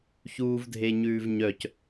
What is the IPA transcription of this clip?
çuːvdʱeɲʉːvɲœc

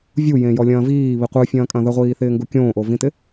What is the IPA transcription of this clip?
vʲujẽjɔlʲɐ̃ː viːβi qʷɨfʲɐ̃ːkʼɐ̃ ðəʁʷiːθɪːŋɡu kʲõːʔovĩtɪ

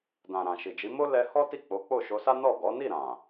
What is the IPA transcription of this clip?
dã˨ɾã˨ ʃi˨d͡ʒi˨˦ mo˦ lɛ˧hɔ˦ ti˦˨k͡po˨˦ k͡po˦˨ʃo˧sa˦ nɔ˦˨ɡɔ˨˦ ni˦˨ ɾã˨

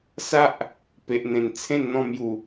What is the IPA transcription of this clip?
sa˦ʔ | pe˨ʔn̪ẽ˨˩nt͡sʰẽ˥˧nn̪ɔ̃˥˧ mju˨˩

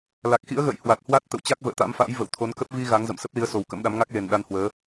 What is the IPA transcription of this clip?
la˨˩k̚ xḭ˧˥ə̯ɣə̰ː˧˨j hwa˨˩t̚hwa˦˥t̚ t̪ə̰˧˨wt͡ɕa˦˥k̚ və̰ː˧˨t̪a̰˧˥mfa̰ː˧˥j və̰˧˨w t̪ʰo˨˦nkə˦˥p̚ vi˧ ɣa˨˦ŋzə̰˧˨m sə˦˥p̚li˨˦ə̯so˨˩w kə̰˧˥mɗa˨˦m ŋa˦˥k̚le˨˩nɗa˧nhwəː˨˦

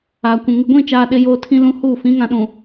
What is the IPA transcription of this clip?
aː˨kʷũ˨ ŋɪ˨ɡʷĩ˦˨t͡ʃaː˨ ɗɪ˦joː˦ tʰĩ˦lũ˦huː˦˨ fĩ˨˦ŋã˨ɗũ˨

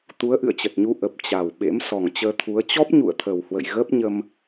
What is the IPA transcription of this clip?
t̪u˨˦ə̯ʔɨ̰˧˨ə̯t͡ɕə˨˩t̚ɲu˧ ʔə˨˩p̚ t͡ɕa˨˩w ɓḛ˧˥msɔ˨˩ŋt͡ɕəː˧t̪ʰu˨˦ə̯ t͡ɕɔ˦˥p̚ɲṵ˧˨ə̯t̪ʰə˨˩whwə̰˧˨j ɣəː˦˥p̚ɲə˧m

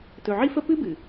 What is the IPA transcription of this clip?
tɵ˨ʕi˦fə˦ pɨ˦bɨ˨

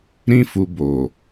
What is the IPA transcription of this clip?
ɾĩ˧fu˨ bo˨

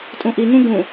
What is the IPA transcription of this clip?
tʼũʔiŋũ ɡũ

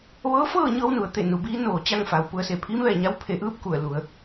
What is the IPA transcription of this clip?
ʋɤː˧˥fɤː˥˨ɲɤː˧w nu˩˧ə̯t̪e˧˩ nu˩˧biː˧˥ noː˩ t͡ɕa˥˨ŋfa˩˧wpu˩˧ə̯se˧˩ pʰiː˧˥mʋɛː˧˩ɲa˧˥w pʰe˩˧ʔɯː˥˨p̚ ku˧˩ə̯lu˩˧ə̯

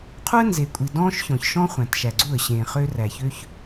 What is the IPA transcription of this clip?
qʰu˦ə̯nze˨kʷʼi˨ dɔ̃ː˦ʃ çɔ̃˨ç ʃɔ̃˦ χʷæ̃˨tʃæ˨ɡ͡ǀu˦˨ə̯ ɕẽː˨χø˦ ræ˨çø˦ç

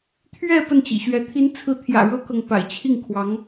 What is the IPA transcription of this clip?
t̪ʰɥɛ˥˧ pə˥˩nt͡ɕḭ˨˩ɕɥɛ˧˥ t̪ʰi˧˥nt͡sʰɹ̩˧˥t̪ʰjä̰˨˩ ɻɤ˥kɤ˨ŋ pa̰˨˩ɪ̯t͡ɕʰi˥˩ŋkʰwɑ˧˥ŋ

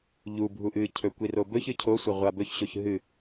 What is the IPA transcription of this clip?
ʎubʱu ʔɨcʰɵ kʷirobɵçɨ cʰosʷɐ ʁʷabɵçɕoç ɦɨ

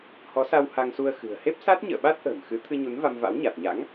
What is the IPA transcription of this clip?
hɔ˨˦ sa˧w ha˧ŋsu˧ə̯xɨ̤˨˩ə̯ he˦˥p̚sa˦˥t̚ɲə̰ː˧˨ɓa˦˥t̚ ʔə̤ː˨˩mxɨ˨˦ t̪ʰɨ˧ɲu˨˦n va˧mva̰˧˥wɲa˨˩t̚ɲa̰˧˥ŋ

